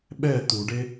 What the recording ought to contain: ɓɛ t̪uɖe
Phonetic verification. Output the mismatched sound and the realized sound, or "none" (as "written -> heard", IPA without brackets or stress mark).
none